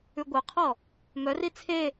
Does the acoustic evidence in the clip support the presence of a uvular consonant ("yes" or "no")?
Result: yes